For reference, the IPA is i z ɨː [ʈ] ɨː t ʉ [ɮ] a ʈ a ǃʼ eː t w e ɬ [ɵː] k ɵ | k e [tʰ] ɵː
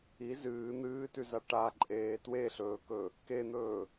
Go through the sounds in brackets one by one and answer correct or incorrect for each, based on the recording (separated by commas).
incorrect, incorrect, correct, incorrect